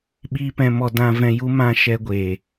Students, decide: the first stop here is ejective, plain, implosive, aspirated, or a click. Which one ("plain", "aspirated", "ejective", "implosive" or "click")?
implosive